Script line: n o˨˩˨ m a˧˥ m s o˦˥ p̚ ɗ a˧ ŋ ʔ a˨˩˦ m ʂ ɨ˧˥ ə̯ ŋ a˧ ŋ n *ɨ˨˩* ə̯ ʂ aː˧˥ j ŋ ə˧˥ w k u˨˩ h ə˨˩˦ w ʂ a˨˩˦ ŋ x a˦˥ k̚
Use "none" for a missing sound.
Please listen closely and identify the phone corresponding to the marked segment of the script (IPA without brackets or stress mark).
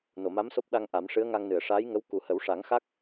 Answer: ɨ˨˩˨